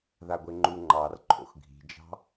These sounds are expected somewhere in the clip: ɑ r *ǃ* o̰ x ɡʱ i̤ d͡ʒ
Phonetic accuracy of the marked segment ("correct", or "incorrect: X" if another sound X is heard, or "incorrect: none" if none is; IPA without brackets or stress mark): incorrect: ǃʰ